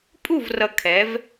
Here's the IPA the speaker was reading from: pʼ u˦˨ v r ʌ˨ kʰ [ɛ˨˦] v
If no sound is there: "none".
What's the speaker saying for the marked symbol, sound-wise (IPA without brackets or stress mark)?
ɛ˨˦